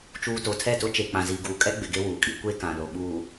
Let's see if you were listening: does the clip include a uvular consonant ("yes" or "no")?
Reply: no